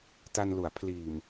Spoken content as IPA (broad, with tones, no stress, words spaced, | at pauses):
ta˧nlu˩˦a̯ pʰliː˨˩m